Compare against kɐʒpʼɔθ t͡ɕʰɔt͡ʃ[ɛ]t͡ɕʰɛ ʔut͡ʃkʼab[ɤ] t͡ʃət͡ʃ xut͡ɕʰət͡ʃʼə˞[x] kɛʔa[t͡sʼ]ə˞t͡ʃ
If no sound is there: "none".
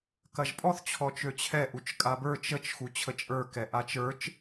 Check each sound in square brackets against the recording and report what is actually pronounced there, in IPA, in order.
ø, ə˞, none, t͡ʃ

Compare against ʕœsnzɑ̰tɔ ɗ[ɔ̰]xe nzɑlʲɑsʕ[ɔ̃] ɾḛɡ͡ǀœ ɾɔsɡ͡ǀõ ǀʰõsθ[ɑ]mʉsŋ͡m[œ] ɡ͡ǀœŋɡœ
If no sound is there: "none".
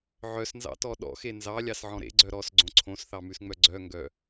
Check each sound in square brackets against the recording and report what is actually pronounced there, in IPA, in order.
ɔ̰, ɔ̃, ɑ, œ

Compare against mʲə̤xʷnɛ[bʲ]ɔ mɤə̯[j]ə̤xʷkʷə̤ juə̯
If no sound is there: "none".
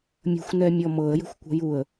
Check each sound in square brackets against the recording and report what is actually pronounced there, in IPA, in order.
mʲ, j

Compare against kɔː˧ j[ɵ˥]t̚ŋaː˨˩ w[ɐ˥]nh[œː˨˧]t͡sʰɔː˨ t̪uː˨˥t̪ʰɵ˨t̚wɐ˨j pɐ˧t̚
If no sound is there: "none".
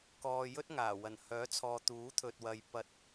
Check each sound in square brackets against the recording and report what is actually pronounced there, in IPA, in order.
ɵ˥, ɐ˨˩, œː˨˥

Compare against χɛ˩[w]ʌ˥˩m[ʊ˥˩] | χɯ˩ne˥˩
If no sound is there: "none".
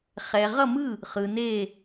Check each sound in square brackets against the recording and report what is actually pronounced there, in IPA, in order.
ʁ, ɯ˥˩

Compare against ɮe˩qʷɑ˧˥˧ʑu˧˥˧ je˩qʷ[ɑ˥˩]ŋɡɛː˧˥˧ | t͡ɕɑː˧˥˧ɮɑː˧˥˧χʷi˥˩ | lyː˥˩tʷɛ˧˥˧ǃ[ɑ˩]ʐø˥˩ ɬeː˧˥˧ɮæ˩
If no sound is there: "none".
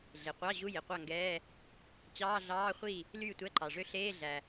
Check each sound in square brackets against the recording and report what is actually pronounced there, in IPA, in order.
ɑ˥˩, ɑ˩

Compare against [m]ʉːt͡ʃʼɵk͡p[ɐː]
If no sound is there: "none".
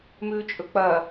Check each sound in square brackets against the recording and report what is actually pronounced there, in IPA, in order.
m, ɐː

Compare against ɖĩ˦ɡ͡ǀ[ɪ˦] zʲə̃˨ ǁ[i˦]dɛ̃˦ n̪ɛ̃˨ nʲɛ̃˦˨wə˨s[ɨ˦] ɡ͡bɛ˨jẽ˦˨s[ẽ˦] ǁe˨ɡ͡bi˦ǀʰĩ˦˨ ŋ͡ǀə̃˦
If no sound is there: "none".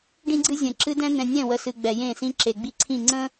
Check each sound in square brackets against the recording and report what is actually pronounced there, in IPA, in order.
ɨ˦, ɨ˦, ɨ˨, ĩ˦

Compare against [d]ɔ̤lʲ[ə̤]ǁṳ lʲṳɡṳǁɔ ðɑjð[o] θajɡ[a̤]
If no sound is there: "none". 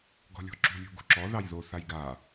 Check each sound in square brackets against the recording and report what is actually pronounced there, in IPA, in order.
ɡ, ɔ̤, o, a

